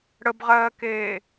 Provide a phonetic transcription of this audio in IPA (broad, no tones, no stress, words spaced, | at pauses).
ɽəbʁɜːkeː